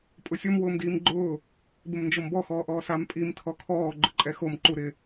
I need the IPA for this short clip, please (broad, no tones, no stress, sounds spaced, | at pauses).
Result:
pʼ ʊ sʲ o m w ʊː m d iː m ɡ͡ǃ ʊː | b ɪ m n d͡ʒ o m b ɔ x ɔː ʔ ɔː s a m pʼ i m tʰ ɔ kʰ ɔː ɡ͡ǃ ʊ ǃʼ ɛ x o m ǃ u ɾ ɪ